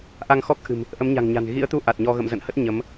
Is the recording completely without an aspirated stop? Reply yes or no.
yes